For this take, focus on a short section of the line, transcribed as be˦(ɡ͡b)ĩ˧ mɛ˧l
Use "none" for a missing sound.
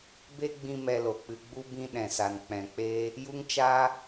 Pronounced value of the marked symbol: ɡ͡b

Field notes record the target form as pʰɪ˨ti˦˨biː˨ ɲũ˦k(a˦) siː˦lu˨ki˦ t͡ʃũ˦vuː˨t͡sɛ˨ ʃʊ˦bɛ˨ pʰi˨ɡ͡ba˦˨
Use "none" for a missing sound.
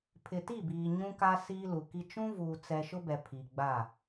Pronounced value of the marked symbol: a˦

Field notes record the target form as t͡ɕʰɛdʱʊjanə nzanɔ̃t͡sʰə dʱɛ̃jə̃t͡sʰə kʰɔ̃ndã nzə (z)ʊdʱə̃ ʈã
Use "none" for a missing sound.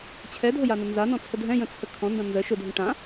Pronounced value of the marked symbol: ʃ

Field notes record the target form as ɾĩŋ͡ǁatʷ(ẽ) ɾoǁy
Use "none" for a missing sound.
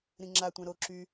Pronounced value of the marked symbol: ɛ̃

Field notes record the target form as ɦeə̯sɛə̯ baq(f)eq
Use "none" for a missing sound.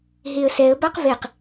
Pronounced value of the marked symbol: v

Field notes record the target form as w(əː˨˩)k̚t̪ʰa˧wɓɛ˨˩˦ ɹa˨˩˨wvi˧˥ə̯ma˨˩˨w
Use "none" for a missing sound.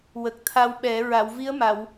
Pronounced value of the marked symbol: ə˨˩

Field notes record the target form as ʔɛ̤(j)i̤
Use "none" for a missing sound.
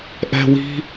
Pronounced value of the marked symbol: w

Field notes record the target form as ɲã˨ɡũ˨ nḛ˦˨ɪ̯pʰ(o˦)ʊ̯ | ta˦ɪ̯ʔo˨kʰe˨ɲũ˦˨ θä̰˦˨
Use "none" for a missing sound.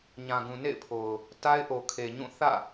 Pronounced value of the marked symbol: o˨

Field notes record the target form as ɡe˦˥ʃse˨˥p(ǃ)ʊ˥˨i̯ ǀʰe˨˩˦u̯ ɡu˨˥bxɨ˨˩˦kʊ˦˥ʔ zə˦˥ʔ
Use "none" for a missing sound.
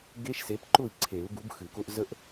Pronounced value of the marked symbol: ǃ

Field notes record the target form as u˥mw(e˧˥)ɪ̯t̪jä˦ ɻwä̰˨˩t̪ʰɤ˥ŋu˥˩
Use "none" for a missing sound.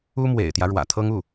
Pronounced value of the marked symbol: ḛ˨˩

